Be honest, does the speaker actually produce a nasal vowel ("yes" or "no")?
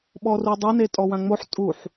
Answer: yes